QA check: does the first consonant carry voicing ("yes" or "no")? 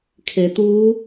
no